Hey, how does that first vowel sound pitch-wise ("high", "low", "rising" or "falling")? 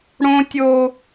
high